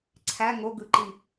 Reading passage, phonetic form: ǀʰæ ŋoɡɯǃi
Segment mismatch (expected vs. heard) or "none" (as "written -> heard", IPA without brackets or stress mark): none